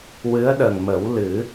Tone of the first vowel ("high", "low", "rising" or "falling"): rising